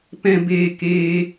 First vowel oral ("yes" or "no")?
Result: no